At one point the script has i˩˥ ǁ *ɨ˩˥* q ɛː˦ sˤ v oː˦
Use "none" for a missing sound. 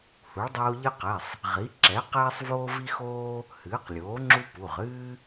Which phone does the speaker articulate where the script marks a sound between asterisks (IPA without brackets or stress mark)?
ɛ˩˥